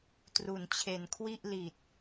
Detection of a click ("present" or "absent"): absent